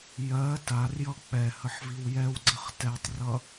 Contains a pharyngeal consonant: yes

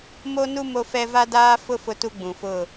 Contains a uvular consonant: no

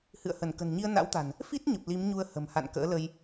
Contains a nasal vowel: no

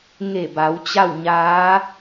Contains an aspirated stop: no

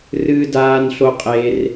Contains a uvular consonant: yes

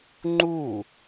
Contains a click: yes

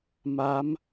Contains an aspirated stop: no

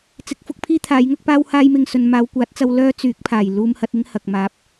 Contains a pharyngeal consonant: no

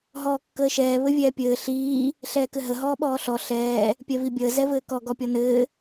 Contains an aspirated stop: no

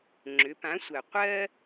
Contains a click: yes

